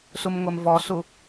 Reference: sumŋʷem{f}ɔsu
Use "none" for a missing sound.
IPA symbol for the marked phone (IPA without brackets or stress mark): v